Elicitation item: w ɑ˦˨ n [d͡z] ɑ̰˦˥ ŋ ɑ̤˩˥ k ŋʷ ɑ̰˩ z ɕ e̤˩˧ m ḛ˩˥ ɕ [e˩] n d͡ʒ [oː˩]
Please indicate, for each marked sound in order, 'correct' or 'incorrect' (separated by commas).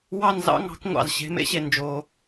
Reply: incorrect, correct, correct